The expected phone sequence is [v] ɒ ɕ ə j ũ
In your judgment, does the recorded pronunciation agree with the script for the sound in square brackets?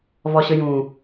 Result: yes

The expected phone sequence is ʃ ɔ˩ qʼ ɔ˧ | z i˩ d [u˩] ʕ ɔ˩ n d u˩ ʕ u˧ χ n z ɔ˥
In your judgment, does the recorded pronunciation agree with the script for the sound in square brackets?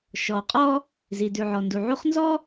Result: no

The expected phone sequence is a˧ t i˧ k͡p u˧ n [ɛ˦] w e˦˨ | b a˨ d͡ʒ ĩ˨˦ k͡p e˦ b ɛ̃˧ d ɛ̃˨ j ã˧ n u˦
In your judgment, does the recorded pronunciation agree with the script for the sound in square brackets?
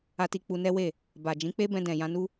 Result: yes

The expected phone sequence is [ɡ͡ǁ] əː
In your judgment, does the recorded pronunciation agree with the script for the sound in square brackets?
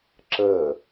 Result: no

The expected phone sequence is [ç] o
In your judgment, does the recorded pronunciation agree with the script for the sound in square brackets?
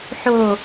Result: no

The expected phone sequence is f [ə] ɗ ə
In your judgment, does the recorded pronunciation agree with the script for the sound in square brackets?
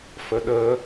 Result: yes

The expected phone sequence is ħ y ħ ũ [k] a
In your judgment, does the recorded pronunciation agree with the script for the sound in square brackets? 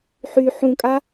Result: no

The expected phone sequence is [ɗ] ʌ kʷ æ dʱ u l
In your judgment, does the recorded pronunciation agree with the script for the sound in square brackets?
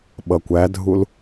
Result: no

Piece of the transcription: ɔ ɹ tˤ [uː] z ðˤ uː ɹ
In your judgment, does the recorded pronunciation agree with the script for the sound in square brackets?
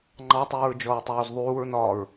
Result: yes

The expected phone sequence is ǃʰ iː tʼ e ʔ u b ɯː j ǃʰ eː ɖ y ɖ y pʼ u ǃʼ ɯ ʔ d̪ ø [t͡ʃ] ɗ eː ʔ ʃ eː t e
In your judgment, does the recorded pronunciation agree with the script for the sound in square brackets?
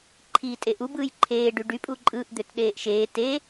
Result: no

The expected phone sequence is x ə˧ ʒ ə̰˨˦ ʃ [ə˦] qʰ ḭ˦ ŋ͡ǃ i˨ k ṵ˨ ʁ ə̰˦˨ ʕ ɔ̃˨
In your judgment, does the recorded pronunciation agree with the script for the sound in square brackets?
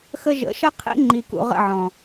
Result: yes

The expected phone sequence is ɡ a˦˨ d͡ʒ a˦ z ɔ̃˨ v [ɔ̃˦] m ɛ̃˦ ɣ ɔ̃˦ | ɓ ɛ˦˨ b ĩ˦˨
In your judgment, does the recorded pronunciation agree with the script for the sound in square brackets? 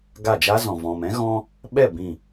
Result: no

